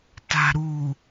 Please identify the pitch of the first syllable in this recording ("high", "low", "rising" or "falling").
low